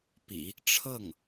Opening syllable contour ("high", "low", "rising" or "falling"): low